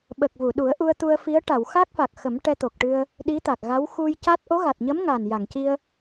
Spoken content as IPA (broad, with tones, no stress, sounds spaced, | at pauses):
ɓ ə˨˩ k̚ v u˨˩˨ ɗ u˨˩˦ ə̯ ʔ u˧ ə̯ t̪ u˧ ə̯ f i˧˥ ə̯ ʈ a˨˩˨ w x a˦˥ k̚ f a˨˩ k̚ x ə˨˩˦ m ʈ ɛ˧ t̪ o˨˩ k̚ ʈ ɨ˧ ə̯ | ɗ i˧˥ t̪ a˨˩ k̚ ɣ a˧˥ w x u˧ j c a˦˥ t̚ ʔ o˧˥ ɣ a˨˩ t̚ ɲ ə˧˥ m ŋ a˨˩ n j a˨˩˨ ŋ c i˧ ə̯